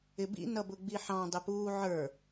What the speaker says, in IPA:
ɪ b ḭ n ʌ b ʊ ɡ͡b i ħ ɑ̃ dˤ ɪ p uː ʕ ə˞

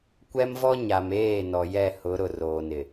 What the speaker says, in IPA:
kʷ ɛ˦ m v ɔ˦ ɲ a˨ m eː˦˨ n ɔ˨ j ɛ˦˨ h ʊ˨˦ ɾ ʊ˨ r oː˨ n ɪ˨

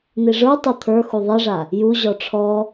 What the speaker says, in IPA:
n̪ i ʐ ə˞ tˤ u t̪ʰ ə˞ x u ðˤ i ʐ a | j u ʑ ɔ ʈ͡ʂʰ ɔ

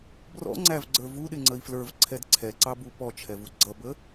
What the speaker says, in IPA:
b r ɔ̰ ŋ͡ǀ æ v ɡ͡ǀ ə˞ v u ɗ ɪ ŋ͡ǀ ə i̯ f l ə˞ v ǀʰ ɛ d ǀʰ ɛ ǀ ɑ b u p ɔ t͡ʃʰ ɛ v u ɡ͡ǀ ʌ b ə

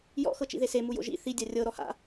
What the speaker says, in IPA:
j ɔ̰ x ɤ t͡ʃ ḭ ð e s e m u j o̰ ʒ ḭ θ i dʲ a rʲ ɤ ɾ ɔ h a̰

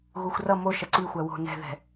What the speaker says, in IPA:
ɣ u xʷ r ʌ m o ʃ ʌ ǀ i xʷ æ w o̤ n ɛ̤ ð ɛ̤

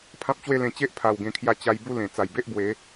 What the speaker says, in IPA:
pʰ ã˦ p̚ t͡ɕ w e˥˧ l ẽ˧ t͡ɕ e˦ ʔ pʰ a˨˩ w ɡ ẽ˨˩ kʰ j a˧ t͡ɕ a˧ j b u˥˧ l ẽ˨˩ t͡s a˨˩ j b e˦ ʔ b w e˨˦

